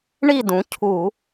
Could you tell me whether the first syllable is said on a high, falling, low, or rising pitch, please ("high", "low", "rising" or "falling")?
falling